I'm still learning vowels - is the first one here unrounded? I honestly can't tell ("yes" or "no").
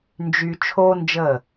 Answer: no